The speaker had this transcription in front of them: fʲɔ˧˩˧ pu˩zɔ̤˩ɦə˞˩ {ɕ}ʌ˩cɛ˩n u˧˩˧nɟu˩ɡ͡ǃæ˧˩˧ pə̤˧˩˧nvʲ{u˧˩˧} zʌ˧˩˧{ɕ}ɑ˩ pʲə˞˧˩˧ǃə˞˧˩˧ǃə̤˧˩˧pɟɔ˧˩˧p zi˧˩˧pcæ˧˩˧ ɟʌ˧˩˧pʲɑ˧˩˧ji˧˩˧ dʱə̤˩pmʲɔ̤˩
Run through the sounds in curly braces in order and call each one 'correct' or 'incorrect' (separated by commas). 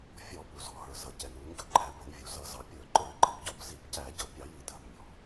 incorrect, incorrect, incorrect